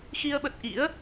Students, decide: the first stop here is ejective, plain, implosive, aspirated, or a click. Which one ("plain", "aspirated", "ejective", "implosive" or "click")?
implosive